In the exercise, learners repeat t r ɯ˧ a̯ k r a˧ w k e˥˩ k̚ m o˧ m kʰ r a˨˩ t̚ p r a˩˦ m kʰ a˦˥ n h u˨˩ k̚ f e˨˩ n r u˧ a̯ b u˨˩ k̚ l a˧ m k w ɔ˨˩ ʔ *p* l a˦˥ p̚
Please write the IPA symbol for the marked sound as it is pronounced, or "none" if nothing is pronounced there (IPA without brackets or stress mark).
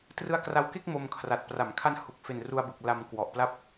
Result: p